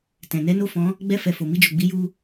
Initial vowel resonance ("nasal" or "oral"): nasal